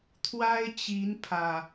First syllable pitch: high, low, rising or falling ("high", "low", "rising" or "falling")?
high